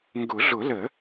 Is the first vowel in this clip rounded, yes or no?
yes